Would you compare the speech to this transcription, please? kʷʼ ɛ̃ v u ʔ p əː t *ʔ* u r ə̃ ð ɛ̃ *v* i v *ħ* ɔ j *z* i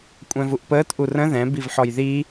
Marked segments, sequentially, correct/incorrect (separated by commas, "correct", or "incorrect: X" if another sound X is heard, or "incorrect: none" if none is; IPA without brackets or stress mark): correct, incorrect: b, correct, incorrect: ð